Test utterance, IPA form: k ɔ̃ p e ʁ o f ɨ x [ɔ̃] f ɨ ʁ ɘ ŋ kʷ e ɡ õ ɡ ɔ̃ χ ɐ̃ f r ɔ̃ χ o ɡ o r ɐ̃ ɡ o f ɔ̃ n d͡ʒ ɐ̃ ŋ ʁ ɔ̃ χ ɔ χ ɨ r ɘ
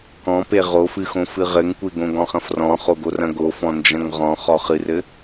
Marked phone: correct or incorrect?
incorrect: õ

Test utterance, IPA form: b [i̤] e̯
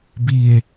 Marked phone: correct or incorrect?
incorrect: i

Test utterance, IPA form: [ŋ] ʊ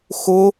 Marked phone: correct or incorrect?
incorrect: x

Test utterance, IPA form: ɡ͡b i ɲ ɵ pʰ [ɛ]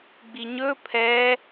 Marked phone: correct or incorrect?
correct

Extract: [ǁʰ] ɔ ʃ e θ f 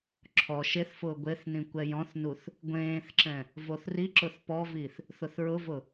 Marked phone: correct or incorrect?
correct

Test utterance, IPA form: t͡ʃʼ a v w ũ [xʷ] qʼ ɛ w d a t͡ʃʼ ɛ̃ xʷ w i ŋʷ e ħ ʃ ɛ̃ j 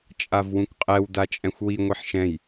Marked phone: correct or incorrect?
incorrect: kʷ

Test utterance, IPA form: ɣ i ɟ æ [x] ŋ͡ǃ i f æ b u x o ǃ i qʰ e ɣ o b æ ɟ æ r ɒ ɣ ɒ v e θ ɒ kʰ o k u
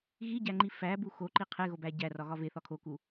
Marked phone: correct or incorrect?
incorrect: none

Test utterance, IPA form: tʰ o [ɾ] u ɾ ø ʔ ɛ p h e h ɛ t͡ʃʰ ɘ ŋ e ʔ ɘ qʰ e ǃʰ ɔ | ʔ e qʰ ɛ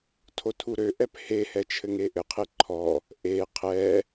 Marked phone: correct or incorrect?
incorrect: tʰ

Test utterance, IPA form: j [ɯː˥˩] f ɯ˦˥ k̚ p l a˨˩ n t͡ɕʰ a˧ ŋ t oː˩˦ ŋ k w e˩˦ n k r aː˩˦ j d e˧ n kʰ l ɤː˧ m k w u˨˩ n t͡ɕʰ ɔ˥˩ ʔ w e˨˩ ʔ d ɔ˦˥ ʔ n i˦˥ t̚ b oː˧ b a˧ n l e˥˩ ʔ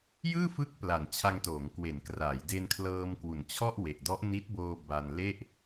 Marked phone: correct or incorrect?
correct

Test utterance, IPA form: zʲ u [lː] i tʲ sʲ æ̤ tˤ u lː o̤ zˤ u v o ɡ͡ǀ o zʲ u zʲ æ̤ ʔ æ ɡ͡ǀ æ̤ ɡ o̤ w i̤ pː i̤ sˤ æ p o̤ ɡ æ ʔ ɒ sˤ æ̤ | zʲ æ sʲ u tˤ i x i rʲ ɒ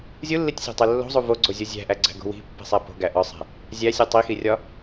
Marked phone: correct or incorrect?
correct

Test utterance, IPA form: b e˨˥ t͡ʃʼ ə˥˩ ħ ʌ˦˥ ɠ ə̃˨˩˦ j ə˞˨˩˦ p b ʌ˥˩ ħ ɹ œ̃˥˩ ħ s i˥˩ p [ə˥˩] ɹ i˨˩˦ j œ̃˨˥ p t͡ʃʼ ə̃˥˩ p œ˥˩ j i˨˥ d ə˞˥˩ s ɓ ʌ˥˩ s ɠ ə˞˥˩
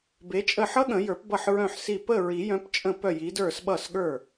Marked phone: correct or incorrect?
correct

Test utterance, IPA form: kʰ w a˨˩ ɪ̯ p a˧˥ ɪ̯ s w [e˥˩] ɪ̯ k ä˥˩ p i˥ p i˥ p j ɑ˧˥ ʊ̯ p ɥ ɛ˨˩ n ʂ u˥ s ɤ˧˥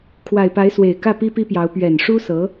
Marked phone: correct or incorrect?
incorrect: e˨˩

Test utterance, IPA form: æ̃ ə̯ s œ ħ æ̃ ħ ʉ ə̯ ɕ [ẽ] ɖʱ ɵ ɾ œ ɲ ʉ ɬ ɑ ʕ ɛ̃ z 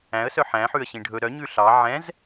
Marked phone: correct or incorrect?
incorrect: ĩ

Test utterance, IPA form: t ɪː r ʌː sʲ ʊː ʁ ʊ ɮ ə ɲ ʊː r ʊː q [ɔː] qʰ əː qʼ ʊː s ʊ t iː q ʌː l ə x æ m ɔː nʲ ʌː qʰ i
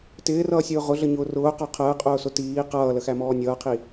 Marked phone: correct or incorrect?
incorrect: ɔ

